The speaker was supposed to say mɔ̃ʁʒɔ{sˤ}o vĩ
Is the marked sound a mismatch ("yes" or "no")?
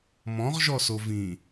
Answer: yes